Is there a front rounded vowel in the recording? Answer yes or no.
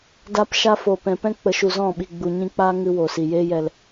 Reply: no